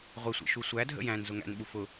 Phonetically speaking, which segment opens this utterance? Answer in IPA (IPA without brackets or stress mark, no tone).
ʁʷ